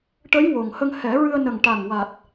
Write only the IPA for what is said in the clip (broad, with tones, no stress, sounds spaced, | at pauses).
ʈ ə˧˥ j w o˨˩ ŋ h ə˧ ŋ h ɛ˨˩˦ ɹ ɨ˧ ə̯ n ə˨˩ ŋ ʈ a˨˩ ŋ w a˨˩ t̚